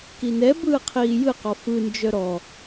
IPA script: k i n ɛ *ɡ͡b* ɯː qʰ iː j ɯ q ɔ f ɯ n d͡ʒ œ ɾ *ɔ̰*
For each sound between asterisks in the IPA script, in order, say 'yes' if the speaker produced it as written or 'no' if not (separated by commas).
no, no